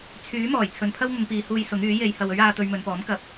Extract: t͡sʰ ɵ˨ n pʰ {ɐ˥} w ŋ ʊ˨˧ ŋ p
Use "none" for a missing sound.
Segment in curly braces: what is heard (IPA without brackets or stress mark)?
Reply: ɐ˥